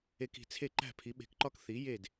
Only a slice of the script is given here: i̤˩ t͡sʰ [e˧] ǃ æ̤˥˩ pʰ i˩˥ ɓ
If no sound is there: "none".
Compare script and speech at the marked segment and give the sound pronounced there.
e˥˩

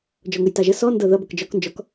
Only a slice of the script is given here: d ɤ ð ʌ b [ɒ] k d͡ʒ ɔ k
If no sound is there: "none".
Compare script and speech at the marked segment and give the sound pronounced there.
ʌ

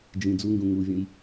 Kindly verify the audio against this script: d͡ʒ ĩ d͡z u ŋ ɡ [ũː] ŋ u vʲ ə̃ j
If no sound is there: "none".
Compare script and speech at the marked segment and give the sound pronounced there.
ũ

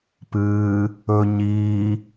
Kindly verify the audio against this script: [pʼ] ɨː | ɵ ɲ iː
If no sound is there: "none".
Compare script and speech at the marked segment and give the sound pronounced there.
p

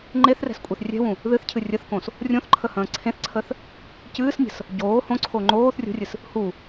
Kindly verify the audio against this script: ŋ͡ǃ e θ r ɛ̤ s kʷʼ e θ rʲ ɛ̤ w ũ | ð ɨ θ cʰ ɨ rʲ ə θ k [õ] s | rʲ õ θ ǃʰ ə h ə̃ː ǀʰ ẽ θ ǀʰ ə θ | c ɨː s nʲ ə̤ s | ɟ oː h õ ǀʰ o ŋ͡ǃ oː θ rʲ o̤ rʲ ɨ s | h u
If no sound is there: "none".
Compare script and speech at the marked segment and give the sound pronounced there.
õ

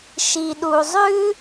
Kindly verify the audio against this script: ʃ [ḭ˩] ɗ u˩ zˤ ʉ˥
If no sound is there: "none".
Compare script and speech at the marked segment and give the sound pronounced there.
i˩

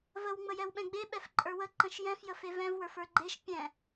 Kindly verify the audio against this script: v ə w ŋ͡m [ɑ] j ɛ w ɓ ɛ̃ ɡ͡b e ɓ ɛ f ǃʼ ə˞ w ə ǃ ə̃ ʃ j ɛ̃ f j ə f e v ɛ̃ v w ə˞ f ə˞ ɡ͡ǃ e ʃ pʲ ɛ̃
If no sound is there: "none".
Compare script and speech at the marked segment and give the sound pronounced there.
ə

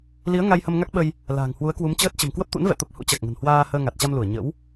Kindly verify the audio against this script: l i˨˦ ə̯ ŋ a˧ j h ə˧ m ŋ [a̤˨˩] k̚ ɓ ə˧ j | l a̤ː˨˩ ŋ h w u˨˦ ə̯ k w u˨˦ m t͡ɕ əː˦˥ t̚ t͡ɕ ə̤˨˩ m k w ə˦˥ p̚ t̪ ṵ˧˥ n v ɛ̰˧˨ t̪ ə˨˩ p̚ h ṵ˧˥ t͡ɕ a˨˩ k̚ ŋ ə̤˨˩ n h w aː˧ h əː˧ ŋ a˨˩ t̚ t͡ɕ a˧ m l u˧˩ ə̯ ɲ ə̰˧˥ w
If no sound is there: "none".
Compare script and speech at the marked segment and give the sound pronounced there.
a˦˥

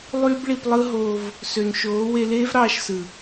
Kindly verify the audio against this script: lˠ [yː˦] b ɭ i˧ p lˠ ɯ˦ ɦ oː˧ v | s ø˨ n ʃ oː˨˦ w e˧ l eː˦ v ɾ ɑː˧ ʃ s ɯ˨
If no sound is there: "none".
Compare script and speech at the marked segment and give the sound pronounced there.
yː˦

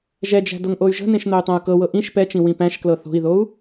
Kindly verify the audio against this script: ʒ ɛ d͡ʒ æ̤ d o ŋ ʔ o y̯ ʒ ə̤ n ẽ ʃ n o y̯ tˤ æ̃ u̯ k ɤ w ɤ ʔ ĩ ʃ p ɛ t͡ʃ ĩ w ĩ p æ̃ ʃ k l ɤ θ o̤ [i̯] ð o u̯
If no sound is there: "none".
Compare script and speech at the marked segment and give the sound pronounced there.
i̯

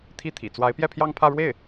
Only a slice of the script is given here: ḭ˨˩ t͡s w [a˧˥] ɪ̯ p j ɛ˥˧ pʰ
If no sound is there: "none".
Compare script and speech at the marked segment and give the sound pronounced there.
a˧˥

